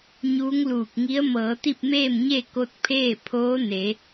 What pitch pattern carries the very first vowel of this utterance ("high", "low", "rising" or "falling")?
rising